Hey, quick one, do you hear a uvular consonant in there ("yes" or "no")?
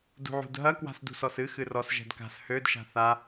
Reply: no